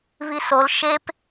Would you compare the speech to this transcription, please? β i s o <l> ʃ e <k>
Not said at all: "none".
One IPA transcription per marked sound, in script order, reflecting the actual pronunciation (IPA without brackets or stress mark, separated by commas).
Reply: l, p